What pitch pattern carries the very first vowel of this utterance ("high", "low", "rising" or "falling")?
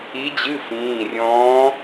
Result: rising